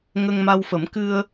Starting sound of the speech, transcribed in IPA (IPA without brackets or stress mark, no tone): ŋ